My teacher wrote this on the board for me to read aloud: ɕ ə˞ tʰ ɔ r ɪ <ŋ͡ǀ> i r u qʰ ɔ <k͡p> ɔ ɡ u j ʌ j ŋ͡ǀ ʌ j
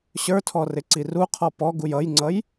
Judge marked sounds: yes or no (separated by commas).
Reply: no, no